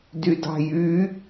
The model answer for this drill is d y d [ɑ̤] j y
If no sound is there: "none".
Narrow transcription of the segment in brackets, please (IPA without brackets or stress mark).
ɑ̤